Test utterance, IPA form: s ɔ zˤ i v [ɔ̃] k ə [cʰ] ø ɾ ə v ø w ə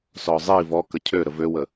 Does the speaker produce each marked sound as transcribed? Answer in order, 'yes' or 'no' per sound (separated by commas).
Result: no, yes